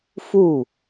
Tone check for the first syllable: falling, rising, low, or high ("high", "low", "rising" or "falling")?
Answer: falling